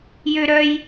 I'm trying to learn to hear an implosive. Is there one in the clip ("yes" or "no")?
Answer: no